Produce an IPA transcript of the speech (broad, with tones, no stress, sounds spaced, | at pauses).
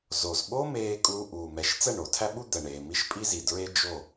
z o˨ z ɓ o˦ m eː˧ kʼ uː˧ ʔ uː˨ m ɛ˨ ʃ t͡s ɛ˦˨ ɳ o˨ tʰ æ˦ ɓ u˦ d̪ ɛ˨ ɳ eː˨ m i˦ ʃ pʼ i˦ z i˨ d ɹ e˦ d͡ʒ o˦˨